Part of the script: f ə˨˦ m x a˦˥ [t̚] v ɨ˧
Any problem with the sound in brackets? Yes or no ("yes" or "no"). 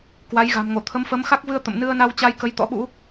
yes